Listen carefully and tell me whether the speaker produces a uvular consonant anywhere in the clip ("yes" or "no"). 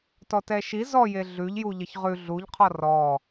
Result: yes